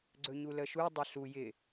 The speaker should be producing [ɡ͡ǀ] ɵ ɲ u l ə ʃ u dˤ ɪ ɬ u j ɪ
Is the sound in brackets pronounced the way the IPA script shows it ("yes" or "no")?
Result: yes